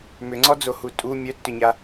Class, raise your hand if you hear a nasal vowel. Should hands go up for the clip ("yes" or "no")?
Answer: no